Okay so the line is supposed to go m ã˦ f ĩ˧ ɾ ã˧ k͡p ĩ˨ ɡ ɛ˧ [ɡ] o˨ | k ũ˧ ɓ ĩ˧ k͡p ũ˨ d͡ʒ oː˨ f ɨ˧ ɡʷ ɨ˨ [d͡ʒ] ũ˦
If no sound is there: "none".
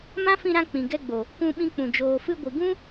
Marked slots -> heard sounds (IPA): ɡ͡b, ɡ

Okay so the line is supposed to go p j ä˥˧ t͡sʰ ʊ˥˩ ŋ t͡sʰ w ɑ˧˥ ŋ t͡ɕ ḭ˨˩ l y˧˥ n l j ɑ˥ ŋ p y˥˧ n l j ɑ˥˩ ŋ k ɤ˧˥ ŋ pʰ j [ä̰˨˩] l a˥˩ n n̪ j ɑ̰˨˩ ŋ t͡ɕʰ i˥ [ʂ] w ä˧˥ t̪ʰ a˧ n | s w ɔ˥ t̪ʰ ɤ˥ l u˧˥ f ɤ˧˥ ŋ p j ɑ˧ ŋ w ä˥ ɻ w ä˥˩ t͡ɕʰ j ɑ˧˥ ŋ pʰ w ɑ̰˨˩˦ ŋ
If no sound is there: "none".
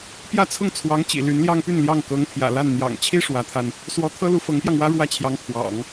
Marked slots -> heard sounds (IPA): ä̰˨˩, ʂ

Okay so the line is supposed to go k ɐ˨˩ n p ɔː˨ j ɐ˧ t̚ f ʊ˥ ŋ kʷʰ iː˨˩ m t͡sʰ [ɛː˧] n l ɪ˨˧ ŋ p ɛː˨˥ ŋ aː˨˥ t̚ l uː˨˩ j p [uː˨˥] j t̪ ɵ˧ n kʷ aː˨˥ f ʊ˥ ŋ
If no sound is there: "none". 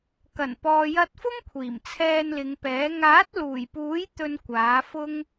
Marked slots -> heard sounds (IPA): ɛː˧, uː˨˥

